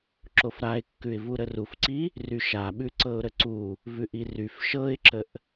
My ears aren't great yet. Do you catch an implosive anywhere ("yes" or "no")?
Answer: yes